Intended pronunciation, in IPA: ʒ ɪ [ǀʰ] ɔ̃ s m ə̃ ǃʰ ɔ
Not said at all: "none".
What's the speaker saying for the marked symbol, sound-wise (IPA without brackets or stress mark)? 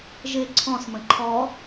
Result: ǀʰ